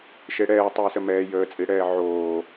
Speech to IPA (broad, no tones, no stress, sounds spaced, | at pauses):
ʃ e ɽ ɛː tˤ oː s ə m ɛː j əː t͡sʼ i ɽ ɛː ʕ oː